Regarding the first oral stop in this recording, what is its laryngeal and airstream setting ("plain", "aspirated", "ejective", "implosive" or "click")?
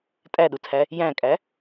ejective